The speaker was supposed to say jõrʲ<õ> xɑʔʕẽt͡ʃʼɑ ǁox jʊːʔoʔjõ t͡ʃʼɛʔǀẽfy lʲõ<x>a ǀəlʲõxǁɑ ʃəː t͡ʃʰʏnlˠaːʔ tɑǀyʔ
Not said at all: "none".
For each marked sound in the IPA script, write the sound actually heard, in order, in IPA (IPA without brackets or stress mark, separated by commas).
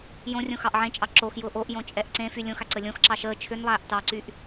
õ, x